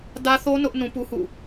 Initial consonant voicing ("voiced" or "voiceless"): voiced